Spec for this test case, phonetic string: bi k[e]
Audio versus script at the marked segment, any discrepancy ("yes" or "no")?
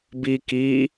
yes